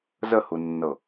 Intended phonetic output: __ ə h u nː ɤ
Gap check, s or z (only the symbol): z